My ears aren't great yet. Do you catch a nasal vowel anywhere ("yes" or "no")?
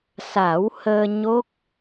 no